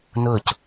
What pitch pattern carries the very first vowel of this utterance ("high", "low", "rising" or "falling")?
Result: falling